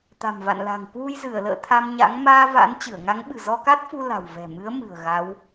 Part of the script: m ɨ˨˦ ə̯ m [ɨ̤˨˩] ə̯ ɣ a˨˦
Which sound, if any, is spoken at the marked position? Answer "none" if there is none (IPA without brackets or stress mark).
ɨ̤˨˩